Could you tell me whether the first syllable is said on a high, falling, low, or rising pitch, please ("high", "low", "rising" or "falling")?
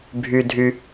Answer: low